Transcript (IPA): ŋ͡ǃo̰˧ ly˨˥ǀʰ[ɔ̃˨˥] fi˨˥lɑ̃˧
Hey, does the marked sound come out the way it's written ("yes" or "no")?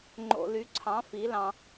no